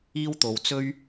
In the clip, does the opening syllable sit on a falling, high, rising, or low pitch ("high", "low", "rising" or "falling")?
high